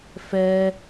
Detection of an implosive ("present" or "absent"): absent